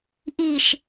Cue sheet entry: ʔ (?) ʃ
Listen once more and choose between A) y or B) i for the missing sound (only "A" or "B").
B